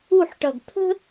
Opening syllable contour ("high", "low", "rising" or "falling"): falling